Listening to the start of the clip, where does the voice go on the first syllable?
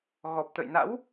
low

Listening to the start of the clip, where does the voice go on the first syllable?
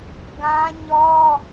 high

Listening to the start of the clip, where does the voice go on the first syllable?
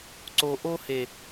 low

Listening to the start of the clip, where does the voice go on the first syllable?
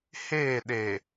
falling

